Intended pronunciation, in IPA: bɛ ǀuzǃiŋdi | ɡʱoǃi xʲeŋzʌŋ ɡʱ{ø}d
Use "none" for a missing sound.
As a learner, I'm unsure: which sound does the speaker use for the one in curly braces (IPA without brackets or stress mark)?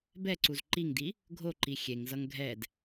ɛ